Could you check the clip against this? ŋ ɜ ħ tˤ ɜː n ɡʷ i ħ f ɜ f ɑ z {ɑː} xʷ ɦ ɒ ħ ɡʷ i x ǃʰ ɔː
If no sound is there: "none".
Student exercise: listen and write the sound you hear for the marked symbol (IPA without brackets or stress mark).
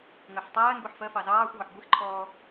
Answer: ɑː